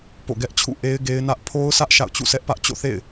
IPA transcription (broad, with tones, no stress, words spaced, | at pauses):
po̰˦˨ɡɛ˦ʔt͡ɕʰṵ˦˨ ʔe˦ɪ̯ɡe˦ɪ̯nä˦ʔ pʰo˦ʊ̯sʰä˦ʔ ʃa̰˦˨ʊ̯t͡ɕṵ˦˨sʰɛ˦ʔpä˦ʔ t͡ɕo̰˦˨θḛ˦˨ɪ̯